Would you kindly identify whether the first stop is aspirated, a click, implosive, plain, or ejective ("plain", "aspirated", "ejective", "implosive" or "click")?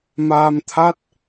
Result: aspirated